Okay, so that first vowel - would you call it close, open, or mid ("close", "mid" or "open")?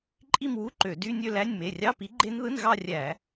close